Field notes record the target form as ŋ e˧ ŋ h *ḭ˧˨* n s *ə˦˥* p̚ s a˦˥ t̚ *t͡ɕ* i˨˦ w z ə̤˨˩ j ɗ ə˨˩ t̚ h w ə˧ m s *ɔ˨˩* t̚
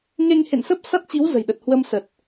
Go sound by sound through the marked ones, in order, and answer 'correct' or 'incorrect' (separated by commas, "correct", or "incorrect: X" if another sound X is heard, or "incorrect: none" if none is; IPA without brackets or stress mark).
incorrect: ḛ˧˨, correct, correct, incorrect: ə˨˩